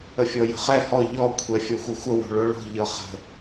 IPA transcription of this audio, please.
əfʲɔjə̤χɛ hɔ ʎɔ kʷʰɛfʲɔxʷɤxʷə wo̤ɭoɭo̤ ʎɤχə̤

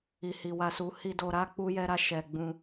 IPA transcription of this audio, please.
i˨hi˨wa˧su˧ hi˧do˧ɾa˦ k͡pu˦jɛ˦ɾa˦ ʃɛ˧ ɡ͡bũ˧

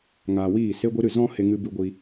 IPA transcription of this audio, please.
ŋaː˨wiː˦˨ se˦ɡʷi˦ɾɨ˦˨ zɔ̃˦ he˦ŋɨ˦ bɨ˧ɡʷi˧

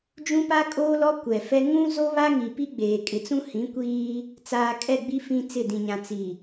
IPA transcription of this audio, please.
d͡ʒũ˦pa˦kʼoː˦lɔ˦ kʷɛ˨fɛ˦ ŋũ˦zo˦ βa˦ŋi˨pi˦ɡ͡beː˨ kʼɪ˨t͡sũ˦hĩ˨˦kʷiː˦ | t͡saː˨kʼɛ˦˨ɡ͡bi˦ fĩ˦ t͡sɪ˦˨dĩ˨ɲã˨ t͡si˨

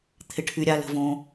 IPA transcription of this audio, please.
t̪ʰɪ˩ʈʰy˩ ɾʲa˩ lə̤˩võ˩

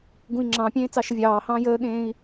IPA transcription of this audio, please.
ɡũi̯ŋ͡ǁɑ̃pʲẽː t͡sɑʃəvʲɑːhɑ̃ː jəːɠẽːi̯

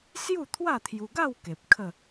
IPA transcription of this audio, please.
sju˥˧t̪ʰwa˥˧t̪ʰju˧ɡa˥˧w ke˨p̚ kʰə˥˧

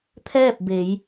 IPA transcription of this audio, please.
t̪ʰɛː˥˨p̚ be˩˧j

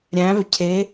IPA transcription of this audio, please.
ɾʲæ̃˩˧vcʰe˩˧

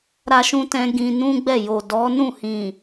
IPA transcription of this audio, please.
ɾa˦ʃũ˦ tɛ̃˦ ɡĩ˧nũ˦ɡ͡bɛ˦˨ jo˨dɔ˨˦nũ˦˨ hĩ˨

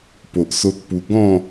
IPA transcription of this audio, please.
po˨ʔso˦t̚pu˧ ɡɔ̃˥˧

